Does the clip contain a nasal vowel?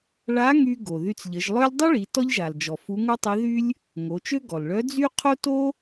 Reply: no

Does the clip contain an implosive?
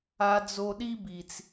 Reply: yes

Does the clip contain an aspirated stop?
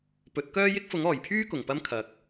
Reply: yes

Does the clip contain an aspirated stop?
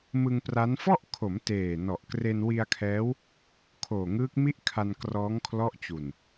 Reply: yes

